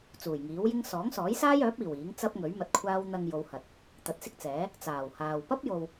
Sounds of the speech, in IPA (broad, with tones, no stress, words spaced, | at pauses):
t͡suː˨˩jŋiː˨˥wjɪ˥ŋ sɔː˨˥ŋsɔː˨˥jsaː˥jœː˨˥p̚ iː˨˩w iː˨˥ŋt͡sɐ˥p̚ŋɵ˨˥ɥ mɐ˧t̚kʷʰaː˥w n̪ɐ˧ŋjo˨˧whɐ˨t̚ | t̪ɐ˨˥t̚sɪ˥k̚t͡sɛː˨˥ | t͡saː˨˩whaː˨w pɐ˥p̚jo˨w